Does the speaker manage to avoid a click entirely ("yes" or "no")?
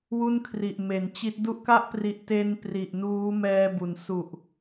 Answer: yes